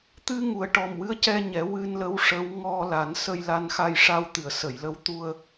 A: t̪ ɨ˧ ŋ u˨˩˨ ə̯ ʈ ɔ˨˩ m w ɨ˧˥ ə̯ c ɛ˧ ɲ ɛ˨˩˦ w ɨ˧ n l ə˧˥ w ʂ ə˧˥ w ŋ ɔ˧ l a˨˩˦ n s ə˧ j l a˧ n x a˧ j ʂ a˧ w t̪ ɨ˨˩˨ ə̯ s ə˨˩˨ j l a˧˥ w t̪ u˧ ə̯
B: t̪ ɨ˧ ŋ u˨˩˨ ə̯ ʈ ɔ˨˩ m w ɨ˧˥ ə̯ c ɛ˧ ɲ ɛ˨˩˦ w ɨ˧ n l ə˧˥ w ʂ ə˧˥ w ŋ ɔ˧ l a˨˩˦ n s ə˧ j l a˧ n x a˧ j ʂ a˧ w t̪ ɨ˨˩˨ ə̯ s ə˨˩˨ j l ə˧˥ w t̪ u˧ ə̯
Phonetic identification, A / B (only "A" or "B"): B